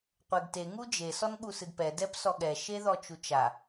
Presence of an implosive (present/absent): present